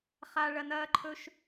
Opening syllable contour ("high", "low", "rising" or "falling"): high